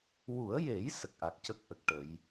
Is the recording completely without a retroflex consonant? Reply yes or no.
no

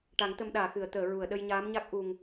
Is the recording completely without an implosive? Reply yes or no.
no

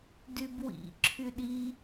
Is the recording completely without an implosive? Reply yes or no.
no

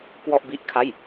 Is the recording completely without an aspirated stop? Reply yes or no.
no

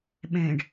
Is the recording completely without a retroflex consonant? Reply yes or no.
no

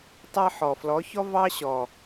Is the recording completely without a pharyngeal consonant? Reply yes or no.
no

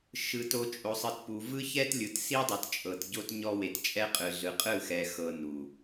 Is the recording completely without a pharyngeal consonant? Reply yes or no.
yes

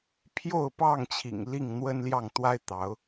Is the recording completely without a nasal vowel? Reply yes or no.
yes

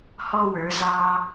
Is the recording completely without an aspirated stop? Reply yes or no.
yes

